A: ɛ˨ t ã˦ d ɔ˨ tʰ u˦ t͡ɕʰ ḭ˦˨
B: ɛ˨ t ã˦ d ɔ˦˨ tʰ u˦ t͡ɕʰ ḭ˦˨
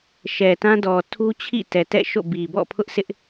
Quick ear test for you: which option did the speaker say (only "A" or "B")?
A